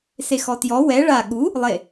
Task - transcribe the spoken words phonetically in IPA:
s e x ɔ t j ɔ w ɛ ɭ a ɠ u | lˠ e

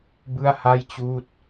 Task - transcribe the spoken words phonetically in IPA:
b ɯ˥˩ a̯ h a˥˩ j t͡ɕ uː˥˩ t̚

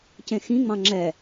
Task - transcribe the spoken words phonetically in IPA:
c ẽ x ĩ ŋ͡m ɑ̃ ŋ͡ǁ ɛ

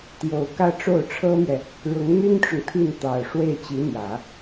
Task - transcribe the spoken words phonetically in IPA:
t̪ j o˨˩ ʊ̯ k ä˥˧ ʈ͡ʂ o˥˩ ʊ̯ ʈ͡ʂʰ ɤ˥ m ɥ ɛ˨ | ɻ ʊ˧˥ ŋ n̪ y˥ n ʈ͡ʂ ʊ˨ ŋ t̪ʰ i˥˩ n t̪ ɑ˨˩ ʊ̯ ʂ w e˥˩ ɪ̯ t͡ɕ i˧˥ n̪ j ä˨˩˦

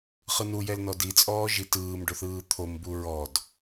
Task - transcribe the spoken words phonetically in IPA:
χ ɯ n u j ɛ l n ɔ d i t͡sʼ ɔː ʒ i t ɯː m ɖ o θ ɯː t̪ʰ o m b u ɹ ɔ d

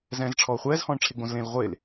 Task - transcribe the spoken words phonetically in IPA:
z ɛ̃ː z ʈ͡ʂʰ ɔː χʷ ɛː z h ɔ̃ː ɳ ʈ͡ʂʰ e ɡ͡b õ z l ẽ l ʁʷ e l

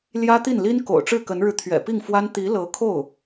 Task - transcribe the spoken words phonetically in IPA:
l j ä˥ t̪ i˥˩ n l i˥ n k o̰˨˩ ʊ̯ ʈ͡ʂ ɻ̩˥˩ k ə˧˥ n ɻ ɻ̩˧ t̪ʰ ɥ ɛ̰˨˩ p i˥˩ ŋ f w a˥ n t̪ i˧˥ l ɤ˧˥ kʰ o˥˩ ʊ̯

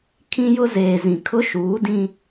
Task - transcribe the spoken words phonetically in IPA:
kʰ ĩ˦ j ʊ˦ z eː˨ z ĩ˨ kʰ ʊ˦ ʃ uː˨˦ d ĩ˦

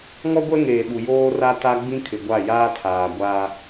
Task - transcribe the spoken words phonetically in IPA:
ŋ ɔ˦ ɡʷ ɛ˦ ŋ eː˨ ɓ u˨ j oː˦ r a˦ t a˦ ɡ͡b ĩ˦ kʰ ɪ˨ ɡʷ a˦˨ j aː˦ tʰ aː˨ ɡʷ aː˦

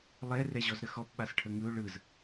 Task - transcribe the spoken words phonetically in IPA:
lˠ ɛ r ɛ ʑ ɔ z ɾ ə x ɔ p ɓ a s ʈʰ ə ŋ ɯ ʊ̯ ɭ ɯ z

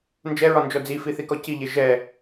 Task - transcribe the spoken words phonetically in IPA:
n d͡ʒ ɛ ɹ ɒ n d͡ʒ ɔ d͡z i f i θ i k ɔ c i ʎ e ʒ ɛ

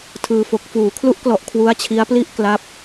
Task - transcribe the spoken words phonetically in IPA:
tʰ ɯː˧ f o˨˩ k̚ f uː˩˦ kʰ l u˦˥ ʔ k l ɔ˨˩ ʔ kʰ w u˦˥ a̯ t͡ɕʰ i˦˥ a̯ p l i˥˩ ʔ k l a˦˥ p̚

